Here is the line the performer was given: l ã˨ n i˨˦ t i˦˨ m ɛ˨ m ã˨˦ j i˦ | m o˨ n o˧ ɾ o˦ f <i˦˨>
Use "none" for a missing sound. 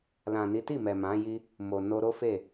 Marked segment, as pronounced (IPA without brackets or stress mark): e˦˨